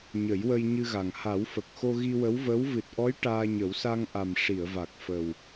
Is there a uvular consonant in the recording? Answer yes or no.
no